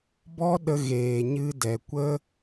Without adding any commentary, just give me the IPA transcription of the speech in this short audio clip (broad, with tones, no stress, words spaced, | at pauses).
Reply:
bɔ˦ɗə˧ ɣeː˨ɲɨ˧dɛ˨ kʷə˦